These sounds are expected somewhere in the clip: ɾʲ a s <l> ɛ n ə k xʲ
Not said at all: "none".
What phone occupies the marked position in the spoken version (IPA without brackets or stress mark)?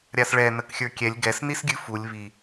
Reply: ɭ